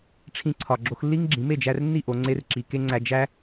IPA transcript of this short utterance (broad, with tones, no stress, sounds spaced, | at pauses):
ʈ͡ʂʰ ĩ˧ ǀʰ ɒ˨ ɡ͡ǁ o˧ x lː i˦ ŋ ɡ͡ǁ ĩ˨˦ m e˦˨ d͡ʒ æ˧ r nː i˦˨ ʔ o˧ ŋ͡ǀ e˦ r ǁ i˧ k e˦ ŋ͡ǀ æ˧ d͡ʒ æ˦